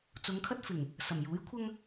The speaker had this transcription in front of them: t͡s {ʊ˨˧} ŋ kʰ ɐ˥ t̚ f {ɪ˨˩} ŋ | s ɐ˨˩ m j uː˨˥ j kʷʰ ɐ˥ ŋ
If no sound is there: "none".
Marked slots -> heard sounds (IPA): ʊ˨˧, ɪ˨˩

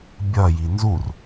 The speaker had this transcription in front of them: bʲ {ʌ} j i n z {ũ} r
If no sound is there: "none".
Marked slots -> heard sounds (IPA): ʌ, u

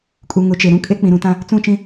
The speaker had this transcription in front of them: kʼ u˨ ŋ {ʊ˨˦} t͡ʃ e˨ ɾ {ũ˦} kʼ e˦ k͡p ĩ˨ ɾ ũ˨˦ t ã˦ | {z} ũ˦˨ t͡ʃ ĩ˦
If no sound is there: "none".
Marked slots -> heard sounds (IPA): ʊ˨˦, ũ˦, t͡s

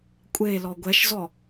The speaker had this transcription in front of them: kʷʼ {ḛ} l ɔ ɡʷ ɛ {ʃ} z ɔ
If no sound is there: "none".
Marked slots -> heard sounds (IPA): e, ʃ

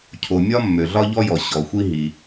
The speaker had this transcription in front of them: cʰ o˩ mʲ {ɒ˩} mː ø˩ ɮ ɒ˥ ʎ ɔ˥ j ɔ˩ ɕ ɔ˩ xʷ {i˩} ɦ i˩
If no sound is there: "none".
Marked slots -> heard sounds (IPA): ɒ˥, i˥

